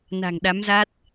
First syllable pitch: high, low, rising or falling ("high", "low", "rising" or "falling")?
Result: low